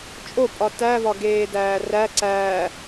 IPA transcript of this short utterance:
t͡ʃʼopʼɒ tævɒ ɡeːdæːræ ǀæː

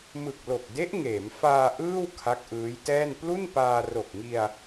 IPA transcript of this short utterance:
mɯ˨˩k̚lo˨˩k̚de˦˥ʔ ŋeː˩˦mfaː˧ ʔɯː˥˩w kʰa˦˥k̚ʔɯː˦˥jtɛː˥˩n plu˥˩npaː˧ ro˨˩k̚ŋi˧a̯

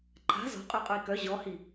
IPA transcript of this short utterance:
ǃʰa̤ zɔ̤qʼœqʼœi̯ kœ ʑɔhi

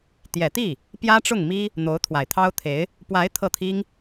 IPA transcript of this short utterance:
t̪jɛ˨˩t̪i˥˩ | pjä˥ʈ͡ʂʊ˥˩ŋmi˥ | n̪o˧˥ʊ̯t̪ʰwa˨˩ɪ̯t̪ʰɑ˥ʊ̯t̪ʰe˧˥ɪ̯ | pwa˧˥ɪ̯ t̪ʰɤ˥˩t̪ʰi˥ŋ

